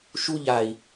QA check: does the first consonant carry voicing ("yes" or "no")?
no